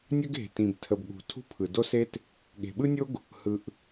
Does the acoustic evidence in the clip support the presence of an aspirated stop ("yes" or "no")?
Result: yes